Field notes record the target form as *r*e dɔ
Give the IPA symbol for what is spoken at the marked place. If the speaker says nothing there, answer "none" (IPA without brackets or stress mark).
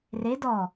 r